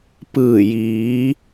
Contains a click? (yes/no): no